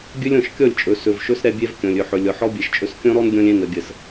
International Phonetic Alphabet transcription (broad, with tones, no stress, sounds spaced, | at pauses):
ɡʲ ɵ˦ lʲ ɔ̃˨ ʃ kʲ ɔ˦˨ lʲ t͡ʃʼ ɵ˨ s ɵ˨ v ʃ ɵ˦ s ɾ ɛ˦ bʲ ɛ˦ v kʲ ɔ̃˨ lʲ ɵ˨ ħ ɵ˨ lʲ ɔ˨ ħ ɔ˦ bʲ ɛ˨ ʃ t͡ʃʼ ɵ˦ s kʲ ɔ̃˦ ɾ ɔ˦ n ɡʲ ɔ̃˦ lʲ ɛ̃˦˨ n ə˨ ɡʲ ə˨ s